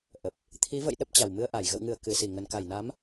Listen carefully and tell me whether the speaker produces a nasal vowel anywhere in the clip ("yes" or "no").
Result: no